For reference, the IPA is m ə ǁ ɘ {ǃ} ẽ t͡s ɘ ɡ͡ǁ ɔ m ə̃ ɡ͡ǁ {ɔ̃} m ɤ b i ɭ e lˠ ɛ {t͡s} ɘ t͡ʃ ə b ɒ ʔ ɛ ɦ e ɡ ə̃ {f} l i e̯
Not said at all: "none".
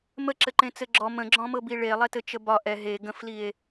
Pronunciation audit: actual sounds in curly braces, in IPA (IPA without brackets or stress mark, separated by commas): ǃ, ɔ̃, t, f